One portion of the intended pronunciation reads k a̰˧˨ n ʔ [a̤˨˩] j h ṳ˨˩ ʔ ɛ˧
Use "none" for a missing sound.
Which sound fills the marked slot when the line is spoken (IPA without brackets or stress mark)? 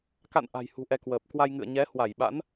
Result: a̤˨˩